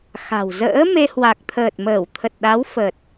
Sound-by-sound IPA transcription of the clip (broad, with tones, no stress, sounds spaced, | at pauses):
x a̤˨˩ w z ə̰ː˧˥ m e˧ h w a˨˩ k̚ t̪ʰ əː˨˩ t̚ m əː˧˩ w t̪ʰ ə˨˩ t̚ ɗ a˨˦ w f ə˨˩ t̚